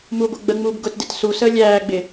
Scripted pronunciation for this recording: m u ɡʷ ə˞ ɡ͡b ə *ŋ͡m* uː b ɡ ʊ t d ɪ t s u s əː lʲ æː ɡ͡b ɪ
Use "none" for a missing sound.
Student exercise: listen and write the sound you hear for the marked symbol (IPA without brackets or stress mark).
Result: ŋ͡m